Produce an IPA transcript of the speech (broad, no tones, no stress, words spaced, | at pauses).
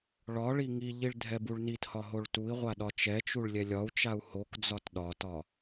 ɭɒɭi ŋiʎiɭ dʱɛbuɭnithɒ ɦoɭtui̯ʁʷa ɗɒt͡ʃɛt͡ʃuɭ lʲɛlʲɒu̯t͡ʃau̯ hokd͡zɒt ɗɒtɒ